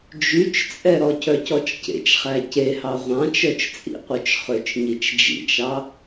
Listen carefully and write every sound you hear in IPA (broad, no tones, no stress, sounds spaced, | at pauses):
d͡ʒ y t͡ʃ t͡sʼ ɛ ɾ ɔ cʰ œ c ɔ t͡ʃ c ḛ t͡ʃ χ æ c e h ɑ ʁʷ ɑ̃ t͡ʃ œ t͡ʃ t͡sʼ ḭ qʷ œ t͡ʃ χ ø t͡ʃ ɲ i t͡ʃ d͡ʒ ḭ t͡ʃ ɑ